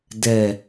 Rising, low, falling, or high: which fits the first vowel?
low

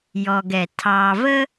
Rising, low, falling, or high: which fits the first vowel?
low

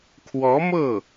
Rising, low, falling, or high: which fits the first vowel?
rising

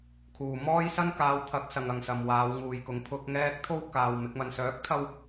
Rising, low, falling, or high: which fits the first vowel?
low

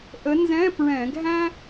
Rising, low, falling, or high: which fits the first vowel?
rising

